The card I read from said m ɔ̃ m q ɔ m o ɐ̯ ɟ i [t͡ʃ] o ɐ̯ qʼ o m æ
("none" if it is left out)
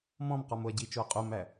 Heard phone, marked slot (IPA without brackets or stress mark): t͡ʃ